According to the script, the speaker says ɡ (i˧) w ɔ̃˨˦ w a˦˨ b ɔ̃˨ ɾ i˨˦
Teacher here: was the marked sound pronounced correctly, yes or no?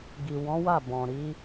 no